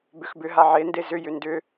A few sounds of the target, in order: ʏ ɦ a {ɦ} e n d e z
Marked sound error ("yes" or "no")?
yes